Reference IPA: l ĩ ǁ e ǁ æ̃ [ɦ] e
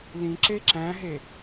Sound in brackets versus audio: correct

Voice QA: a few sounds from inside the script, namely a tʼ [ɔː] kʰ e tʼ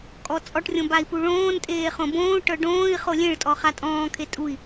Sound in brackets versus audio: incorrect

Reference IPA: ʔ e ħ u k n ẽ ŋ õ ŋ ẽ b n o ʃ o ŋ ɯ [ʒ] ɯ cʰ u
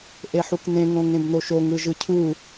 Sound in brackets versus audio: correct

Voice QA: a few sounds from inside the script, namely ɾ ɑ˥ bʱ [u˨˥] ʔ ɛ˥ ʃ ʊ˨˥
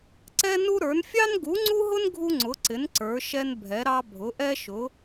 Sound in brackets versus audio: incorrect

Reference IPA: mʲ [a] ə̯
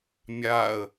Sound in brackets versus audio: correct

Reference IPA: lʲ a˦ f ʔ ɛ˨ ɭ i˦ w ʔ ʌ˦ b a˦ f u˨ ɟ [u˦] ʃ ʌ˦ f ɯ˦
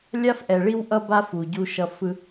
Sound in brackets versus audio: correct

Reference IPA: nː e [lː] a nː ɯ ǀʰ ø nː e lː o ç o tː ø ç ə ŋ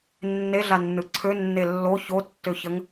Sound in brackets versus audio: incorrect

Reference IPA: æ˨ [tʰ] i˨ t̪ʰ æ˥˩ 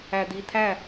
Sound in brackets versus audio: incorrect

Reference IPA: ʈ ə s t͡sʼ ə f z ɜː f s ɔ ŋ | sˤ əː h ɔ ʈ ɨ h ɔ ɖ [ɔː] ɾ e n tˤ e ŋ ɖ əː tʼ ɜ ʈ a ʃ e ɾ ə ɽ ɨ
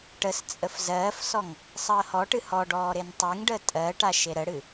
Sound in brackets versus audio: correct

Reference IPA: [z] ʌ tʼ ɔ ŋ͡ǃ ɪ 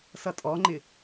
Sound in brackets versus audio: incorrect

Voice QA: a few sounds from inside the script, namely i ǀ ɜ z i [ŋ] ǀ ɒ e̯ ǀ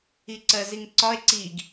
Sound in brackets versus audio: correct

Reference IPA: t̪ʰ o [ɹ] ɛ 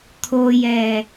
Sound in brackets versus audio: incorrect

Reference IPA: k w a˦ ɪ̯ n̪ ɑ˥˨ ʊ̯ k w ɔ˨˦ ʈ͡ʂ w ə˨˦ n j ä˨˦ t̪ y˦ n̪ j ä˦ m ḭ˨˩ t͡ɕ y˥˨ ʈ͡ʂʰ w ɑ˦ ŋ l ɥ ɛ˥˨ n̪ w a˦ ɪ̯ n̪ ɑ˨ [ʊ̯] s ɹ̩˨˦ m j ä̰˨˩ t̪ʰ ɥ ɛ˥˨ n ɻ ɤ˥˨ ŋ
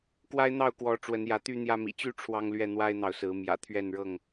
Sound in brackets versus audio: correct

